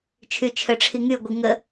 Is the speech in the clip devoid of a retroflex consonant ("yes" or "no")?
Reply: no